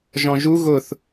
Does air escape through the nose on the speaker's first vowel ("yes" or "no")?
yes